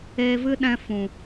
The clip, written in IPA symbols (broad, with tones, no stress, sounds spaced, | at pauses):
eː˧ v ɨ˦ ɗ ɛ̃˧ f ũ˨